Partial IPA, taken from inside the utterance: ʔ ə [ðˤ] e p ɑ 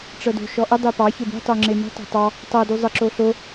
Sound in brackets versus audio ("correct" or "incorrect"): incorrect